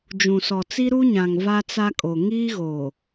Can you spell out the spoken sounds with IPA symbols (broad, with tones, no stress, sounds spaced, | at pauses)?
d͡ʒ ũ˨ s ɔ˨ t͡s i˦ ɾ u˦ ɲ ã˨ ŋ v a˦ t͡s a˦ kʼ o˨ ŋ iː˦ ɣ o˨